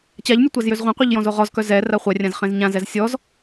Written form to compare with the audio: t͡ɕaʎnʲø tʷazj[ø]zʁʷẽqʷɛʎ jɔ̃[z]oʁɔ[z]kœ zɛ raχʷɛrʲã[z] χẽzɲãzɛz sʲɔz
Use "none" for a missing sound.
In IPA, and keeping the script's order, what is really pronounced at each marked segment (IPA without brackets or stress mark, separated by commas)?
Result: ø, z, z, z